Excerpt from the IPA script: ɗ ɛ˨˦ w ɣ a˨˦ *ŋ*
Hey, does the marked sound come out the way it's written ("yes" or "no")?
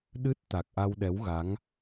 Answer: yes